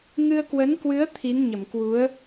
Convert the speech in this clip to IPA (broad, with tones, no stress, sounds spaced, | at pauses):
ŋ ɨ˧ ə̯ k w ə˨˦ n k w ɨ˨˦ ə̯ t̪ʰ i˨˦ n ɲ ə˧˩ m k w u˨˦ ə̯